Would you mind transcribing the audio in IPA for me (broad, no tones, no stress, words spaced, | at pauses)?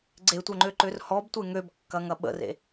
ɡ͡ǀetʷœŋ͡ǃøǃør hɔbtʷe ŋøbkːɐŋɐ ɓə̰rḛ